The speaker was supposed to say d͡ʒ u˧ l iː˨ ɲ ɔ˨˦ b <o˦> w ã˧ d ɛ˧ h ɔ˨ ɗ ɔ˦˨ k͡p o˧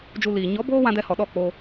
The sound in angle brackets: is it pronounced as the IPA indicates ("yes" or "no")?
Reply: no